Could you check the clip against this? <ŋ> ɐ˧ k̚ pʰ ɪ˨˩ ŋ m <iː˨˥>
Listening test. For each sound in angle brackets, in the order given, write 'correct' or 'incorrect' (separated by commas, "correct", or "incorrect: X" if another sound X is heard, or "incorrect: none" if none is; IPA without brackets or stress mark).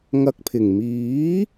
correct, correct